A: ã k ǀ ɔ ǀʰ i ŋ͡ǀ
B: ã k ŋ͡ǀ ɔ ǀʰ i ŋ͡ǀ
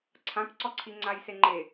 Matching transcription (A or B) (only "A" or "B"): A